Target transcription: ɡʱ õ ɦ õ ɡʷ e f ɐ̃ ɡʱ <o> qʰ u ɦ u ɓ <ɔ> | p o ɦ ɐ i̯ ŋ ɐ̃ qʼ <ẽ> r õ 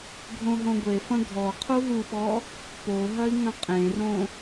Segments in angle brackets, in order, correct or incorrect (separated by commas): incorrect, correct, correct